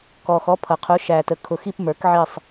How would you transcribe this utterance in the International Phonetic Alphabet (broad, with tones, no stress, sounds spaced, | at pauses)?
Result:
k ɔ˨ x ɔ˨˥ pʰ ʌ˨ qʰ ʊ˨˥ ʃ æ˨ t ə˨ kʰ ʊ˨ x i˦˨ p m ə˞˨˥ k ʕ i˦˨ sˤ